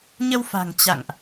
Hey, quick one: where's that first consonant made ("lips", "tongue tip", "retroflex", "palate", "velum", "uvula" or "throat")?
palate